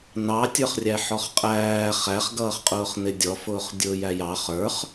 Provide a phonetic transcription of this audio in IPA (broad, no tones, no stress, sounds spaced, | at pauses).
n ɑ tʲ ə˞ χ rʲ æ ħ ɔ χ qʼ æː χ æ χ ɡ ʌː χ qʼ ʊː χ n ɪ dʲ ɔ f ʊː χ dʲ ʊː j æ j ɑ χ ə˞ χ